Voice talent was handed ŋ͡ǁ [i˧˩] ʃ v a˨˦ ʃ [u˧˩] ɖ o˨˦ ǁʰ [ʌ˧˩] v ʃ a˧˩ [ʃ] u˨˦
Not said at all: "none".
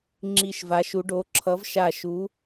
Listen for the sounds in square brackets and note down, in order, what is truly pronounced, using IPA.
i˧˩, u˨˦, ʌ˨˦, ʃ

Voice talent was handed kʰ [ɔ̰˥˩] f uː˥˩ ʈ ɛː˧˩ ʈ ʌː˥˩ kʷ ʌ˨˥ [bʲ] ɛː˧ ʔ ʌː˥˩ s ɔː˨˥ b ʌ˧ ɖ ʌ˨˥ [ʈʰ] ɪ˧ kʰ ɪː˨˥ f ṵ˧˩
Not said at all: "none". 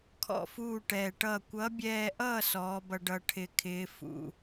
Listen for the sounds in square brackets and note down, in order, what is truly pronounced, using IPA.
ɔ̰˥˩, bʲ, ʈʰ

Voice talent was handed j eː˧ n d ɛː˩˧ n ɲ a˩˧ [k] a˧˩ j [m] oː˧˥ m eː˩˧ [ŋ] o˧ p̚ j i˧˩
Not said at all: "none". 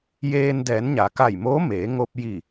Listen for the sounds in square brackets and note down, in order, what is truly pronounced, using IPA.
k, m, ŋ

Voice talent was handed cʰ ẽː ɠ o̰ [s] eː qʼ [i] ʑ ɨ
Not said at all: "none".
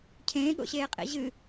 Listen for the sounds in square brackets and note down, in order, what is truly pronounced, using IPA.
ɕ, ḭ

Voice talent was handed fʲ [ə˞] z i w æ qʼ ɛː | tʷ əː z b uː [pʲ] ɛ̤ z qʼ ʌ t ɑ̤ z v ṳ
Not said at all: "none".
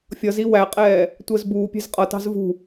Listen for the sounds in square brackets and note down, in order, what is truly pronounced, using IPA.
ʌ, pʲ

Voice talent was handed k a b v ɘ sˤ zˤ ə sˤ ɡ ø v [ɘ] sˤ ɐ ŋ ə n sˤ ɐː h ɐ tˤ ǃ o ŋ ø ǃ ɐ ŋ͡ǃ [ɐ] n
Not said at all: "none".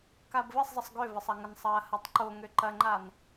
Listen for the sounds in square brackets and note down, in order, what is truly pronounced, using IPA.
ɘ, a

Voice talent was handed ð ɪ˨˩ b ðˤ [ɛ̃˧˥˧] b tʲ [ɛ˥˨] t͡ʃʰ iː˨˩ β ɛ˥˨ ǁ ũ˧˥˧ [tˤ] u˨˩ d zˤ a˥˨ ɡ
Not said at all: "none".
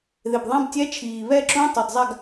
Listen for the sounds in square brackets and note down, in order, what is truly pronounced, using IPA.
ɛ̃˧˥˧, ɛ˧˥˧, tˤ

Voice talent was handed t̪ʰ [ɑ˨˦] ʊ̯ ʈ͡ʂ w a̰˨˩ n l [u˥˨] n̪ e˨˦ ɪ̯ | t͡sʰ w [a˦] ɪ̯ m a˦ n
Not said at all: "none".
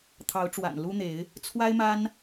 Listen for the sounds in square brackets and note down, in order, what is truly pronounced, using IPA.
ɑ˨˦, u˦, a˦

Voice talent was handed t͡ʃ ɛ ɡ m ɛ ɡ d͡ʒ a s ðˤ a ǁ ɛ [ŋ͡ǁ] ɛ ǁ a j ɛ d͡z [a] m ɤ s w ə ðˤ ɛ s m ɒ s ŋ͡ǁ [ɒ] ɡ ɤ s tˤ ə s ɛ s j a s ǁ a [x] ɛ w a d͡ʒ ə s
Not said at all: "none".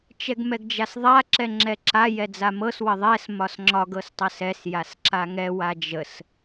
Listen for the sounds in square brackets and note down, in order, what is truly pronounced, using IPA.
ŋ͡ǁ, a, ɒ, ŋ

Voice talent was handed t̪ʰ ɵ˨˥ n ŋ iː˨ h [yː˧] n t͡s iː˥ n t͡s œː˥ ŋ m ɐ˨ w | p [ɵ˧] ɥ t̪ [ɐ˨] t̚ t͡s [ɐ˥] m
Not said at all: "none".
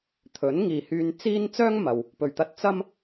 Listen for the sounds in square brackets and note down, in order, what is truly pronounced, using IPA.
yː˧, ɵ˨˩, ɐ˧, ɐ˥

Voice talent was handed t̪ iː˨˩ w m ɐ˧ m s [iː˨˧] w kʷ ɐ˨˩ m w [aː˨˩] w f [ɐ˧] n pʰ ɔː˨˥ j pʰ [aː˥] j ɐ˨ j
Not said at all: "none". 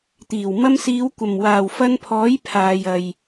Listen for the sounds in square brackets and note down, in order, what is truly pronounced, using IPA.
iː˨˧, aː˨˩, ɐ˧, aː˨

